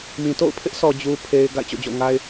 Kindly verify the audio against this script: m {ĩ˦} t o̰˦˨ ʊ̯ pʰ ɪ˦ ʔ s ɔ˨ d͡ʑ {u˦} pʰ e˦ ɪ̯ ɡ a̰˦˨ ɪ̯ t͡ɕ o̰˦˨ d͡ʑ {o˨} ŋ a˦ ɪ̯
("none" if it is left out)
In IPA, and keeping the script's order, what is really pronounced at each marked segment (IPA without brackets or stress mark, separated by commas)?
ĩ˨, u˦, o̰˦˨